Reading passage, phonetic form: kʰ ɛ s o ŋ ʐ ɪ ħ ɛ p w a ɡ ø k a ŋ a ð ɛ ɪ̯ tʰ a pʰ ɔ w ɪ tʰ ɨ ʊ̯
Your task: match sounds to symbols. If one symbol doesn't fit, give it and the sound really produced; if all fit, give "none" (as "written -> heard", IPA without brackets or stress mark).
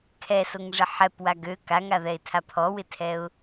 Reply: ɨ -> ɛ